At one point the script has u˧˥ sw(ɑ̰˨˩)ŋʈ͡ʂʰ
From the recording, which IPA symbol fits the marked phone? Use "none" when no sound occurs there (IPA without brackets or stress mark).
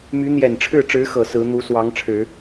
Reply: ɑ˧˥